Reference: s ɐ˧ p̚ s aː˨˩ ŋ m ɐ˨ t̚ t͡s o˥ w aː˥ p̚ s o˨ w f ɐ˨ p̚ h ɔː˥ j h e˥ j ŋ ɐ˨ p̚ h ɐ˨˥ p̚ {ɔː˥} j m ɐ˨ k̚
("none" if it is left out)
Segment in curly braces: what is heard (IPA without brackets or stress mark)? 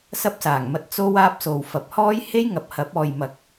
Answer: ɔː˨